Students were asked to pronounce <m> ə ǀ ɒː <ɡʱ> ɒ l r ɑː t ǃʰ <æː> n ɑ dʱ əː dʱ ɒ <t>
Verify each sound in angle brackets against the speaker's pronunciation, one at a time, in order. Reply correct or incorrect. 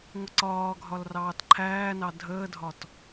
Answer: incorrect: ŋʷ, correct, correct, correct

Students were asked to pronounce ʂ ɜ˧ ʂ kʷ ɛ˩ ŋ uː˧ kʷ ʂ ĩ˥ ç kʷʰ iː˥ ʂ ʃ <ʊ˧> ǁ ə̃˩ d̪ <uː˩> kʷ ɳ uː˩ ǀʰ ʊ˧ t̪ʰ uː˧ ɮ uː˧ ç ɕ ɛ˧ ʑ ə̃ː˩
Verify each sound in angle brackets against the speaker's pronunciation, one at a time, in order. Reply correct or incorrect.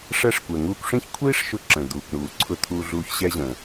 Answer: correct, correct

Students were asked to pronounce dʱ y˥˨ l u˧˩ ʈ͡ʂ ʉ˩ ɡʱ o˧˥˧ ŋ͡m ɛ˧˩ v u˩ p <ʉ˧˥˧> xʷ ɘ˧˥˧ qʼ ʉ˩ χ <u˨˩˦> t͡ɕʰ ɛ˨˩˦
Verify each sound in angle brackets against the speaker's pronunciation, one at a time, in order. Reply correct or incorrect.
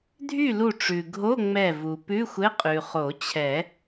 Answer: correct, incorrect: o˨˩˦

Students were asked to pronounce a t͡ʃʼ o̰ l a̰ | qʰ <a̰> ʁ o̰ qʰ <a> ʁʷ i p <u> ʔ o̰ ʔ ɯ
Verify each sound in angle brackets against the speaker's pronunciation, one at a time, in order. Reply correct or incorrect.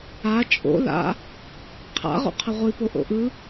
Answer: correct, incorrect: ʌ, incorrect: o

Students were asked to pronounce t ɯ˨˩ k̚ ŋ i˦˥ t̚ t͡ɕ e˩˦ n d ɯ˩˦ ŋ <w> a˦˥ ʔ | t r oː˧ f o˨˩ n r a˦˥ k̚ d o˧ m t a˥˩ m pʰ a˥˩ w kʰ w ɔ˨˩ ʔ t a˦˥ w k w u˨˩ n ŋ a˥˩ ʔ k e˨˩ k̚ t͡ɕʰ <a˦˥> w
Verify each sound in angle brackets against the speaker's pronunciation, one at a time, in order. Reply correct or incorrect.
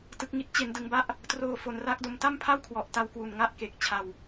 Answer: incorrect: b, incorrect: a˧

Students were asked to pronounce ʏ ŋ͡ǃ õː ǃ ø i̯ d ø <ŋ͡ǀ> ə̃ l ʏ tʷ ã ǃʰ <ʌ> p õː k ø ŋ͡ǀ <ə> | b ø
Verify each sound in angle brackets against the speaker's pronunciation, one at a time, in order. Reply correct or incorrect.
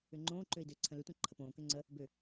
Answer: incorrect: ǀʰ, incorrect: ə, correct

